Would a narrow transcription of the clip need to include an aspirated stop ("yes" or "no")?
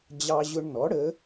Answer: no